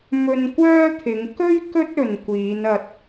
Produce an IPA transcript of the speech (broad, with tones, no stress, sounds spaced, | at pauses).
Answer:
m ɵ˧ n kʷ œː˥ t̪ʰ ɪ˨˧ ŋ k ɵ˥ ɥ k ɵ˥ t̚ ɵ˨ n kʷ iː˨˧ n ɐ˧ t̚